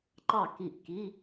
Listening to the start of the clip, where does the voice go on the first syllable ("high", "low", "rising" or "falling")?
falling